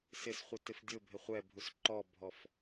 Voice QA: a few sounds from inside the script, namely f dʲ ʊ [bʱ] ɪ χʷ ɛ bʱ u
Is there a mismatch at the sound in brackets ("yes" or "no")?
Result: no